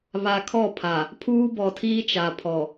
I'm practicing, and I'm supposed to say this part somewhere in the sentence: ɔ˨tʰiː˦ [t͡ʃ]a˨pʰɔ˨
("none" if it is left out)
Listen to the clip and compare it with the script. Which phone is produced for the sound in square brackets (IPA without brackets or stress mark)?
t͡ʃ